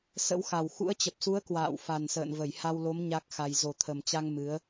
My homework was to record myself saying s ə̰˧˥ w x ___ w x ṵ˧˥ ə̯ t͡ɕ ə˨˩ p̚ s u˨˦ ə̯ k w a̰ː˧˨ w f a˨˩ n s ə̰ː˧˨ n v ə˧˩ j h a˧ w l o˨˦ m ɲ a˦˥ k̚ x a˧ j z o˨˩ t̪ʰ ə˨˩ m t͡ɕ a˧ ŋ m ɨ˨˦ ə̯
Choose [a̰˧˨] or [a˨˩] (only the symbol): a˨˩